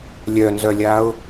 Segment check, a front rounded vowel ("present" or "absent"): present